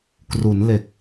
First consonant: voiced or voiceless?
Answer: voiceless